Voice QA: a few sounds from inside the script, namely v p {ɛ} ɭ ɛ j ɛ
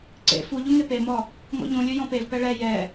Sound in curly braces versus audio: correct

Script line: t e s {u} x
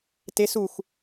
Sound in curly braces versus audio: correct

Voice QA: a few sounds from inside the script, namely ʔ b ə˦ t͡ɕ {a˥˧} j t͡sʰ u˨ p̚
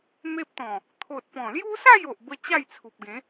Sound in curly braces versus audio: correct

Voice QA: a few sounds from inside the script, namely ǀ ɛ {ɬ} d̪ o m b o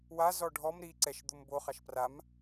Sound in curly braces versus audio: incorrect: ʃ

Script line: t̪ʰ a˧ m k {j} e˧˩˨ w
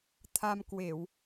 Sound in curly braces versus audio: incorrect: w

